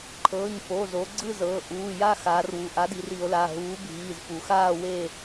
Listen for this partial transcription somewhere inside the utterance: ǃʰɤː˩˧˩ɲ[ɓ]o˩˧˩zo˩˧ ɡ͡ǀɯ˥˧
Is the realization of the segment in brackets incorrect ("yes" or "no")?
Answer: yes